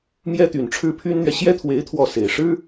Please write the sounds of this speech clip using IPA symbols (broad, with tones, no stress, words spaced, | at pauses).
mjɛ˥t̪y˨˩n ʈ͡ʂʰɻ̩˥pʰy˥nn̪ɥɛ˨ ɕjɛ˥t̪ʰwe˧˥ɪ̯ t̪ʰwɔ˥˩se˨˩ɪ̯ ʂɻ̩˥